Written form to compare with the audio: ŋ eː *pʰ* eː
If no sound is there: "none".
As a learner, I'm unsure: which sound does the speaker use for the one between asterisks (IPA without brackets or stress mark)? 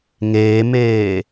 m